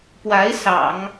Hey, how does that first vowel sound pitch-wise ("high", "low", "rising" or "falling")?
rising